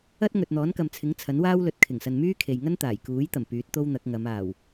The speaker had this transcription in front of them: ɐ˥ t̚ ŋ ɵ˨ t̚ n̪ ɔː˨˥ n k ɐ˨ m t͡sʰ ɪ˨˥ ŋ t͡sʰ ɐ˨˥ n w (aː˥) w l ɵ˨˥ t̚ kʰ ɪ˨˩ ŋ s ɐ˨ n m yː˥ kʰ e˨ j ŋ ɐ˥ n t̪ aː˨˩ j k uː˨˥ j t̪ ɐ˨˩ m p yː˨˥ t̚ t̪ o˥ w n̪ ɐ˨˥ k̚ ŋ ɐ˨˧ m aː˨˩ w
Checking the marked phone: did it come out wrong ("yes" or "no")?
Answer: no